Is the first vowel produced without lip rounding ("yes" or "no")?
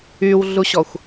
no